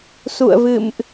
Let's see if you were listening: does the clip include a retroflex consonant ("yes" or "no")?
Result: no